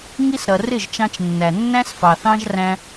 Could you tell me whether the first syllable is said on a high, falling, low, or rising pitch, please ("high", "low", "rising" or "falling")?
high